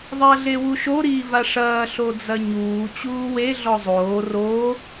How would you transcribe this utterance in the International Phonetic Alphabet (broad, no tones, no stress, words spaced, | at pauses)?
ðˤɐːɮewuʃo ɾiːvaʂɐː ɬod͡zɐɲuː t͡ɕuːwe ɮɔzˤoː roː